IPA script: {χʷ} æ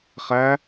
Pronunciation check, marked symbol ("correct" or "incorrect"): incorrect